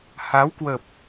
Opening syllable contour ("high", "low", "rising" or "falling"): rising